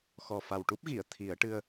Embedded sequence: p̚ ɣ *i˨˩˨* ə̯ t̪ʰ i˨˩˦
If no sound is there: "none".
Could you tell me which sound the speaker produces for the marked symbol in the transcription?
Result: i˨˩˨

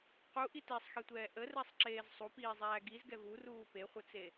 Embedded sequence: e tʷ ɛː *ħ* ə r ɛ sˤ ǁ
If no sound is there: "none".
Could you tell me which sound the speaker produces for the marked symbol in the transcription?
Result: ʔ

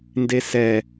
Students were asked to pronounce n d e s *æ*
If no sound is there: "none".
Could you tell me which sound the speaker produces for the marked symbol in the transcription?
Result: ɛ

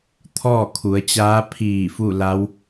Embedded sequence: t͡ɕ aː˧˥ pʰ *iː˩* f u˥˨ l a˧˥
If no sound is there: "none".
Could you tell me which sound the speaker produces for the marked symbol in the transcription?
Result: iː˧˩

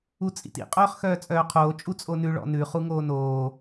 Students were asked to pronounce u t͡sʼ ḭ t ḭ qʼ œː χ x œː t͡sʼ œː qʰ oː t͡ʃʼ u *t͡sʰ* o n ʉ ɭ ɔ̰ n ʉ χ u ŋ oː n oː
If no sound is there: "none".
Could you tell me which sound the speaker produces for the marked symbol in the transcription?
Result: t͡sʼ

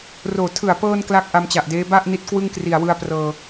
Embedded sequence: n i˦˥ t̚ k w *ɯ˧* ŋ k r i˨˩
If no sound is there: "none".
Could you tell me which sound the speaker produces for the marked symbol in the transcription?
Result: ɯ˥˩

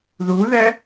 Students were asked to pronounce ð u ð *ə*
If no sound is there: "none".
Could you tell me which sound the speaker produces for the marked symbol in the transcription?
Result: ɛ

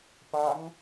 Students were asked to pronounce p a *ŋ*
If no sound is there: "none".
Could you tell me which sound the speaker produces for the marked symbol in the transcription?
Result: ŋ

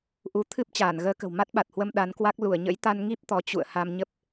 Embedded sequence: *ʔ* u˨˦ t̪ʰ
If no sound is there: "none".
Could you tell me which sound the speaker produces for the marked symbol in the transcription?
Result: ʔ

